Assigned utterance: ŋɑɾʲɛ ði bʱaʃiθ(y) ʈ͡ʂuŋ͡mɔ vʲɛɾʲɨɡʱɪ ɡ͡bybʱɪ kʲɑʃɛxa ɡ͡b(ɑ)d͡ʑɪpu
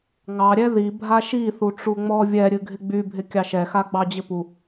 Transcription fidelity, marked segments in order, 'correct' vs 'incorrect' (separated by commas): incorrect, correct